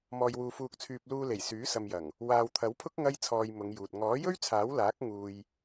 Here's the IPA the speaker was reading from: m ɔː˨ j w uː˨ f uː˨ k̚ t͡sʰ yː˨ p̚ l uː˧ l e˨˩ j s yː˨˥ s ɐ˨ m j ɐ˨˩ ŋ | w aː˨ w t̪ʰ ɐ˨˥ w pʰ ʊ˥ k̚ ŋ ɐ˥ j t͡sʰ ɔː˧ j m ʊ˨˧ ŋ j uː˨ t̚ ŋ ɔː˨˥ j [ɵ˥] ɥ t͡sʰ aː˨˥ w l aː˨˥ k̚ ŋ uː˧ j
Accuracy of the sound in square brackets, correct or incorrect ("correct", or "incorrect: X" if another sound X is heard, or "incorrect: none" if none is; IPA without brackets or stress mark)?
correct